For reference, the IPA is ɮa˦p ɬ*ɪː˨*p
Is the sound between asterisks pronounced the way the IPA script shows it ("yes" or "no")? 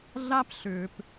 no